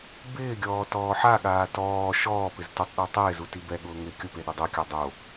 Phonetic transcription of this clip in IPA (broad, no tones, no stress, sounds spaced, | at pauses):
b ɪː ɡʲ ɔː t ɔː ħ a ɠ aː t ɔː ʃ ɔː p ɪ z t ʊ tˤ ɗ e tˤ ɪː z u t i b ɛ ɠ ʊː ŋ ɪ kʲ ʊ p e ɗ ɪ dˤ o kʲ a dˤ o